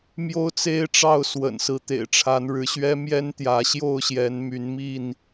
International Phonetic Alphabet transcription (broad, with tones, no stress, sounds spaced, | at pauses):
m j o˦ ʊ̯ t͡s e˦ ɪ̯ ʈ͡ʂ ɑ˥˨ ʊ̯ s w ə̰˨˩ n s ɹ̩˨˦ t̪ ḛ˨˩ ɪ̯ ʈ͡ʂʰ a˨˦ n ɻ ɻ̩˨˦ ɕ ɥ ɛ˦ m j ɛ˦ n t̪ j ä˨˦ ɕ j o˥˨ ʊ̯ ɕ j ɛ˨˦ n m y˨˦ n m i˥˨ n